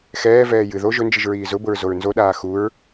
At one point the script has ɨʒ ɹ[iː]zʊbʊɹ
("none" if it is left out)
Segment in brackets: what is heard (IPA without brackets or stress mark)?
iː